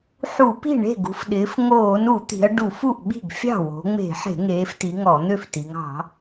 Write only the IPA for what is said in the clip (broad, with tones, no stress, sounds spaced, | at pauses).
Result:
ħ u˧˩˧ p i̤˥˩ ɳ e̤˥˩ ɡ ṳ˩˧ f ɗ ɪː˩˧ f ŋ oː˧˩˧ n u˧˩˧ t̪ i̤˩˧ ɐ̯ ɖ u˧˩˧ f u˥˩ ʔ ɓ i̤˥˩ ɡ fʲ ɑ̤˥˩ w o̤˩˧ ŋ͡m e̤˧˩˧ ħ e̤˧˩˧ ŋ eː˩˧ f t i˩˧ ŋ ɔ˧˩˧ n̪ ø˥˩ f t i˩˧ ŋ ɑ̤˧˩˧